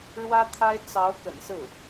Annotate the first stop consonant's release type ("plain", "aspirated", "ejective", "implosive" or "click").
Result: aspirated